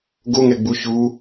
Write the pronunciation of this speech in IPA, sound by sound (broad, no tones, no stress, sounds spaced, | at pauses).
ɡ o ŋ ɛ ɡ͡b u ç u